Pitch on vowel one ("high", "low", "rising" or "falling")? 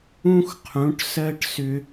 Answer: high